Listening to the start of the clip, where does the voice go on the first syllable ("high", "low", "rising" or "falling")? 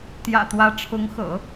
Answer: low